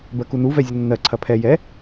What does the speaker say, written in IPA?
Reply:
b ɜ k u n u v ɛ zʲ ə nː ɜ ǀʰ ɐ pʰ ɛ j ɛ

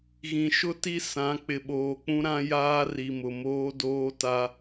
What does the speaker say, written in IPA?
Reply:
ɣ ĩ˨ ʃ ʊ˦ t i˦ s ã˨˦ k͡p ɪ˨ ɓ oː˨ k͡p ũ˦ ɾ ã˦ j aː˦ r i˨ m ʊ˨ m oː˦ d oː˦ t a˦

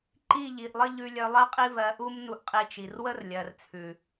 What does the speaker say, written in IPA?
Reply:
ǃ i˦˨ ʎ i˨ ʔ lˠ ɘ˦ ʎ ʉ˧ lʲ œ˧ lˠ ɜ˦ qʼ i˦ v ɜ˧ ʔ u˦ m n u˧ ʔ qʼ i˧ t͡ʃ i˨ r w ə˦ r lʲ ɜ˨ r t͡sʰ ʉ˨

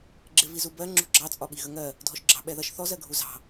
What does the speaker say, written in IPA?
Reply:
ɡ͡ǁ ɪ v i z u b ɜ ŋ͡ǁ ṳ ɡ͡ǁ ɑ t͡sʼ ɒ ɓ i ɣ ə ŋ ɜ | dʱ ɔ ʃ ɡ͡ǁ ɑ̤ ɓ ɛ ð ʌ ʃ θ ɔ z ɜ ɡʱ u z ɑ̤

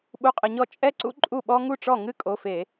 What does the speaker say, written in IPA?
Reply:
ɓ u˧˥˧ qʼ ə˧˩˧ ɲ ɔ˥˩ t͡ʃʼ ɛ˥ ǀ ṵ˥ ǃʼ u˥˩ ɓ ɔ˥ ŋ u˥˩ ʈ͡ʂ ɔ˥˩ ŋ ɨ˥ kʼ o˩˧˩ f e˧˩˧

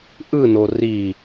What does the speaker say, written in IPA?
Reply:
ʔ ɯ n o r i

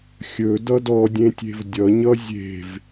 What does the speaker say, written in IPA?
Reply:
xʲ ɵ d ʌ d ɔ dʲ ẽ tʲ e̤ v dʲ ʌ ɲ ʌ zʲ e̤ v

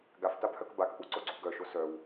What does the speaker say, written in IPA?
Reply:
ɡ a f t a b h œ k b a k ʔ u ǀ o ɡ͡ǀ u ɡ œ ʃ o s œ w

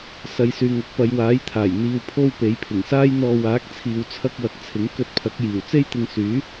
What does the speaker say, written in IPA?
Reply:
s ɐ˨ j s yː˨ ŋ ɐ˨˥ k̚ p ɐ˨˧ j w aː˨˥ j t̪ʰ aː˨˩ j n̪ iː˨ w pʰ o˧ w p e˨˥ j pʰ ɪ˨˩ ŋ s aː˥ j n̪ ɔː˧ w aː˨˥ k̚ t͡sʰ iː˨ w t͡sʰ ɐ˧ k̚ w ɐ˨˥ k̚ t͡sʰ ɪ˨˥ ŋ k ɵ˧ t̚ pʰ ɐ˨˥ k̚ j iː˨˩ w t͡s e˥ j t̪ ɪ˧ ŋ s yː˨˥

